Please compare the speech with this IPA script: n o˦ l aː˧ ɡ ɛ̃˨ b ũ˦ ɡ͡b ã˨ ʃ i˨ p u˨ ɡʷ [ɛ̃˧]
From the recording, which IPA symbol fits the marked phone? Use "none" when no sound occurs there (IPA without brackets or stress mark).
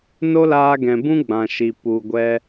ɛ˧